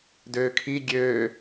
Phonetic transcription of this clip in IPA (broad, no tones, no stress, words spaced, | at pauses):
døːkʰi ɡʲøː